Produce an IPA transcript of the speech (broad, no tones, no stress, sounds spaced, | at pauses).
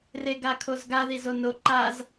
r e ɡ a kʰ o z ɡ a ð i z o n o ǃ a z